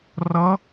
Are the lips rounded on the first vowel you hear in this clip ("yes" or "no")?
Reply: no